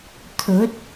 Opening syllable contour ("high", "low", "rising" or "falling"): rising